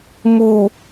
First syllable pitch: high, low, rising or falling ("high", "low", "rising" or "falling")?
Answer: low